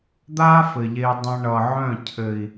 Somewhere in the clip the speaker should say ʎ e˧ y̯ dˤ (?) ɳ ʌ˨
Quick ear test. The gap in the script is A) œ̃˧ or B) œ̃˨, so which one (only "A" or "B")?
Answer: A